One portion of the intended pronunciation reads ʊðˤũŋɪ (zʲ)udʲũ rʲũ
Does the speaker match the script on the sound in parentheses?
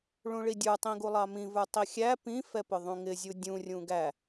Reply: yes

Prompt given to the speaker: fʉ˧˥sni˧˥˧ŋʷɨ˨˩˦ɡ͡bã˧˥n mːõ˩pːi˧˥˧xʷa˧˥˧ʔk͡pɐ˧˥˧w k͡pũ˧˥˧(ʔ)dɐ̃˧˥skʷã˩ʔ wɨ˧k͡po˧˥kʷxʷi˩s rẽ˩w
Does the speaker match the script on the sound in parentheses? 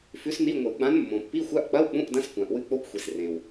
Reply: yes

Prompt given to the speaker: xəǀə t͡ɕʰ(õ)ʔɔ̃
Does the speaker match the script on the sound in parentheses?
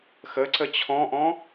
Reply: no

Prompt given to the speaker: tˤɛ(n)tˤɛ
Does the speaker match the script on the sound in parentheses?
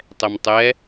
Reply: no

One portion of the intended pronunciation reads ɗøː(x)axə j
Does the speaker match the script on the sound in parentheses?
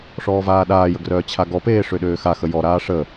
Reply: yes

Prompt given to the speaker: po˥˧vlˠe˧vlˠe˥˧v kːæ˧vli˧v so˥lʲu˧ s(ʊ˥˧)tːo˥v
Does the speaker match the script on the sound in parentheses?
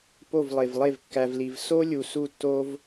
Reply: no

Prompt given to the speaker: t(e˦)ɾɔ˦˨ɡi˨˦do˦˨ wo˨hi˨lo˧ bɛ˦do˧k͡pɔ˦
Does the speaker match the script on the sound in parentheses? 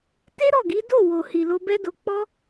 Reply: yes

